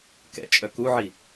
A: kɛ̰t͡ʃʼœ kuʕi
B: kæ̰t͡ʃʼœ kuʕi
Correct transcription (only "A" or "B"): A